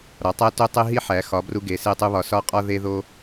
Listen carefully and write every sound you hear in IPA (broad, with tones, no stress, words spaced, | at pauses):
ɾɒ˩˧tˤæ˦ to˦tˤe˦ ɦi˦ħæ˩˧xɒ˩˧ bru˦ɡe˩˧se˦tˤu˦ βɒ˩˧sɒ˦ qʼɒ˦ ðe˦ðo˦